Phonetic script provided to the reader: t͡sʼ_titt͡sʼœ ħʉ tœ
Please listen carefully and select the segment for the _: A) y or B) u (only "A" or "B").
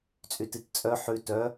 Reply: A